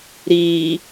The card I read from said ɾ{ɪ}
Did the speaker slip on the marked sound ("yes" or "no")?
yes